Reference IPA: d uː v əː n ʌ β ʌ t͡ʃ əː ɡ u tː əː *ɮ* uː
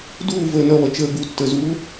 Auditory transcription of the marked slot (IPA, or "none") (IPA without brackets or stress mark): z